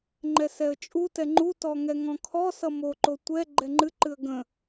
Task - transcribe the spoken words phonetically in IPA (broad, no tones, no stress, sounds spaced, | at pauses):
ŋ͡ǃ ɛ s ɛ ə̯ t͡ʃʼ u t ɛ ŋ͡ǃ u t ɔ ŋ ɛ ŋ ɔ̃ kʰ ɔ s ʌ m o ǃ o tʷ ɛ ɡ͡ǃ ɛ ŋ͡ǃ ɨ ǃ ɨ ə̯ ɡ ə̃